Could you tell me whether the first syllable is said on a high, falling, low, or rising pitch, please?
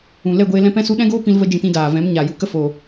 low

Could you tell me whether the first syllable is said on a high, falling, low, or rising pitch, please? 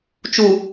low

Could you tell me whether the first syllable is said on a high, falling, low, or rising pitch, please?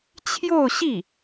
falling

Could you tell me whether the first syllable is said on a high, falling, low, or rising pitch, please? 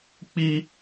high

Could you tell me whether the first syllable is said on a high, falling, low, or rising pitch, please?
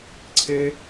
high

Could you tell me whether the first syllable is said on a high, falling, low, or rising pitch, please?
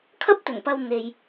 high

